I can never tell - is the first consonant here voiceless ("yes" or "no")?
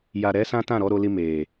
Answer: no